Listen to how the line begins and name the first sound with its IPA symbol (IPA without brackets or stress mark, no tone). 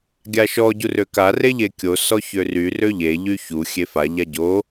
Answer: ɡʲ